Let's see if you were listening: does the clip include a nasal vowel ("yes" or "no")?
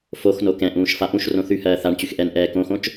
yes